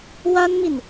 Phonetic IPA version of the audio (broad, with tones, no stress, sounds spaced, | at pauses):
w a˥ n m i˨ n